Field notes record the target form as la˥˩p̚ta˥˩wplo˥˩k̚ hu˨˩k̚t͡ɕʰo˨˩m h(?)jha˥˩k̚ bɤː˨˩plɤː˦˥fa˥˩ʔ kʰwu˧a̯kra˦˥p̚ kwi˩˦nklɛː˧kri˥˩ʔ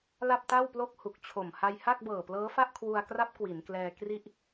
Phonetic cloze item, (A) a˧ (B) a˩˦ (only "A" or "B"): A